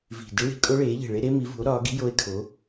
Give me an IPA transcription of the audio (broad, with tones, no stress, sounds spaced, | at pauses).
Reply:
v i̤˨˩ d i˦˥ ɭ i̤˩˥ kʼ o˦˥ ɭ eː˩˥ ʎ e̤˨˩ ɭ e˦˥ ɾ e˦˥ m i˩˥ v ṳ˩˥ o̯ ɾ ɒː˩˥ ɡ i̤˦˥ j o˦˥ e̯ kʰ o˩˥